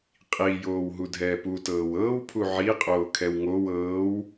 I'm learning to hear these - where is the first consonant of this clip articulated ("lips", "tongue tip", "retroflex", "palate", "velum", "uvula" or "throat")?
uvula